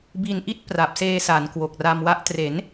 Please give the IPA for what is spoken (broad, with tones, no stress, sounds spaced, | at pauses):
b i˧ n ʔ i˥˩ t̚ p r a˨˩ p̚ s eː˧ s a˩˦ n k w o˨˩ k̚ r a˧ m w a˦˥ ʔ t r e˩˦ n